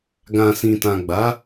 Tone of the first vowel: low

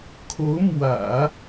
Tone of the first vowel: rising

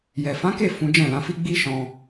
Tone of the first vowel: low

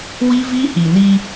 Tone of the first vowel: high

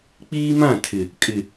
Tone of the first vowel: high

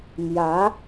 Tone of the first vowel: rising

